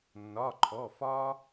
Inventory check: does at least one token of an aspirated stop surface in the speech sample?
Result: yes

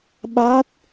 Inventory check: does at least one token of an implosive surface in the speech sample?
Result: yes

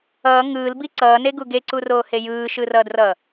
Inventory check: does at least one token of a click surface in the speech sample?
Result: yes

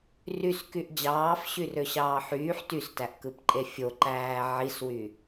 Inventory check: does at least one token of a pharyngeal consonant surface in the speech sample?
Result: yes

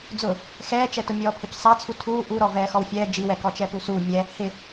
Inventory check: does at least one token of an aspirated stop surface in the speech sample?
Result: yes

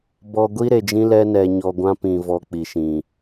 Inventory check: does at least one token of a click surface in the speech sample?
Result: no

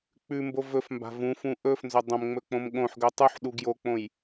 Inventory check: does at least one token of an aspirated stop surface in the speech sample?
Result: no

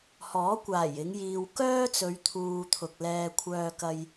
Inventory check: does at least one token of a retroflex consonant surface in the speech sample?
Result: no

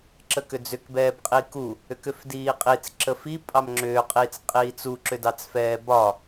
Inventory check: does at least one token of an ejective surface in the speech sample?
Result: yes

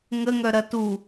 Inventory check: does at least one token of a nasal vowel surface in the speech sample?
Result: no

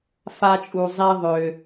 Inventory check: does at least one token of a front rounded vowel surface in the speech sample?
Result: yes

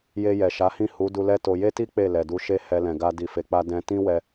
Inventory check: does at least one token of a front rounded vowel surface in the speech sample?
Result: no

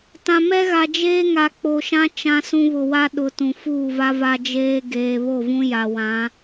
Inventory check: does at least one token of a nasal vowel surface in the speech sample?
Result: yes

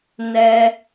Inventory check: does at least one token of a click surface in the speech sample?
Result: no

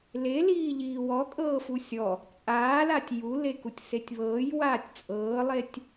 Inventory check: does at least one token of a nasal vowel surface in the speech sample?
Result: no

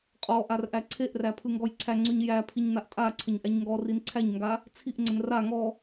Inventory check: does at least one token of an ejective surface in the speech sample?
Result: yes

